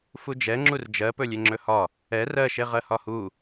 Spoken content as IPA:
fud͡ʒɛ ŋ͡ǁurd͡ʒɜ pɵlʲeŋ͡ǁɵhɒ | ɛ rɜʃe ʁɜhɒhu

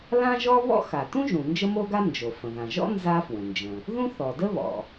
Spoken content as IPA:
lã˥ʒɔ˥ βɔ̰˥xa˩tũ˥ʒũ˩ nd͡ʒə˥mo˥ɡa˥ nd͡ʒo˩ fə̃˩ðã˩ʒɔ̰˥ nza˥fwə̃˩nd͡ʒə̃˩ | ðũ˥θɔ˩də˥ βɔ̰˩

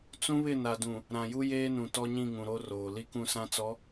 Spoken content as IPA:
t͡sũ˦βɪ˦˨na˨dũ˨ | ɾã˨ju˦ jeː˦nũ˨ tɔ˦ɲĩ˦˨ŋũ˨ɾo˦ roː˨ li˦kũ˦˨sã˦t͡sɔ˨˦

